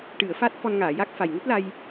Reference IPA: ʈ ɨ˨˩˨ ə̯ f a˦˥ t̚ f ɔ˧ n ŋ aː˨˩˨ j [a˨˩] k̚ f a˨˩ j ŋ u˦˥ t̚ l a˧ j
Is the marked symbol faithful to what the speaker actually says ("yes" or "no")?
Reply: no